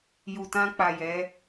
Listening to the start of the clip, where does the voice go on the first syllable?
low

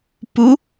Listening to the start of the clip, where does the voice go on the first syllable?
rising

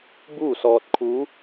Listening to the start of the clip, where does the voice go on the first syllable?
falling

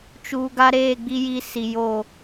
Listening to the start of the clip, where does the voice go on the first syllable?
low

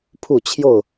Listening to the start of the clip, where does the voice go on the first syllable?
falling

